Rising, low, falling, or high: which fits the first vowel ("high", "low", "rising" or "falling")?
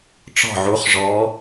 falling